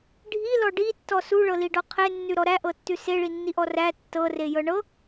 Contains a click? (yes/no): no